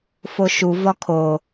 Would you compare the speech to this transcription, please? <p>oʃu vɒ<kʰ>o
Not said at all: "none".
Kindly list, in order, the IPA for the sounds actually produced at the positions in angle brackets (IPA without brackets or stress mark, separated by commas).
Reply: f, kʰ